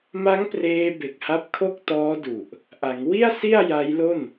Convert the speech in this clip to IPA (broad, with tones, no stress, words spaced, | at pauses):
ma˦˥ŋpreː˧ be˨˩k̚ha˦˥p̚kʰo˥˩k̚tɔː˦˥ du˨˩ʔ | ʔa˩˦ŋ wi˥˩a̯si˥˩a̯ ja˦˥jlo˥˩n